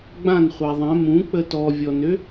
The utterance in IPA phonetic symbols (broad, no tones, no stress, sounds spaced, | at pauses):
ɡ͡b ã n χʷ a ðˤ ɛ̃ m ũ k͡p ə t ɔ vʲ ɔ n ø